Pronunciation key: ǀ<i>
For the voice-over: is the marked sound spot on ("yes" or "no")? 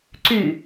no